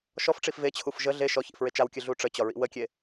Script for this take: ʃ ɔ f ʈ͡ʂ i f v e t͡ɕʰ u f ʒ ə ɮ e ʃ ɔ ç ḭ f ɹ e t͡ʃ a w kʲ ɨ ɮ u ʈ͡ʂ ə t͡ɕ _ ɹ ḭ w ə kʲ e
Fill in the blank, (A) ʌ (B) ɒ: B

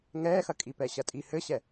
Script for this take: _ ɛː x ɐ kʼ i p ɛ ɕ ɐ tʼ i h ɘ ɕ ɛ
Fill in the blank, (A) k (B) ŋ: B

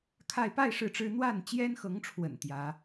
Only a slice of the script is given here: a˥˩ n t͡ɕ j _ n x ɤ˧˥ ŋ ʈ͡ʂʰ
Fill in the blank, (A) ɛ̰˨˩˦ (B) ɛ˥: B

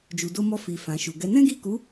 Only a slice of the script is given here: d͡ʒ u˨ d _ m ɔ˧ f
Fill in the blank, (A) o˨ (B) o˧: B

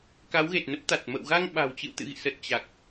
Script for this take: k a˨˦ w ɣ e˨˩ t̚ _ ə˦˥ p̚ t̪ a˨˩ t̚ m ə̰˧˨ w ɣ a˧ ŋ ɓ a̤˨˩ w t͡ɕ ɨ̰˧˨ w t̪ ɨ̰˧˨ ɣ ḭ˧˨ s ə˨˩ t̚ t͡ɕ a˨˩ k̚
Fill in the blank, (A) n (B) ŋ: A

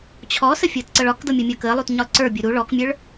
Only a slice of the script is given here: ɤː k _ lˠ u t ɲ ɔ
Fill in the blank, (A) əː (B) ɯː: A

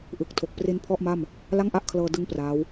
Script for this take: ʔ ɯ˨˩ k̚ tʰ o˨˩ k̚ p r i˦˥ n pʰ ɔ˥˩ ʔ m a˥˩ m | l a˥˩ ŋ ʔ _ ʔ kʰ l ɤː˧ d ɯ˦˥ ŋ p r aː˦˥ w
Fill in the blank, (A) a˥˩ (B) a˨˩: A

